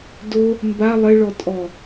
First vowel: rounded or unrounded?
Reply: rounded